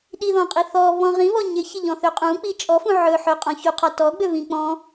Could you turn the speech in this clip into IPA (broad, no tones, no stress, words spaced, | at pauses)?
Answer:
ɗiðɔ̃qʼi θɔβɔ̃ ʁĩβɔ ɲɪçɪʎɔ̃θø qʼũk͡pi t͡ʃʼɔfũ ʕɵ ħɵqʼɔ̃ çuqʰɒ tɔɡ͡bøβĩ k͡pɔ̃